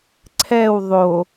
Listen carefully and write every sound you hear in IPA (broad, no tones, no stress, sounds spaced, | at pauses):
ǀʰ ɛ w ðˤ o